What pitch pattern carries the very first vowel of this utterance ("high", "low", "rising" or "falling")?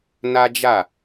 high